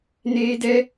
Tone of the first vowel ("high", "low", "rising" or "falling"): high